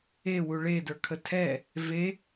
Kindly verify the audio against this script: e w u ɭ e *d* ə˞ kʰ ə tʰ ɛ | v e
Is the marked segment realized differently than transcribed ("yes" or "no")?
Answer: no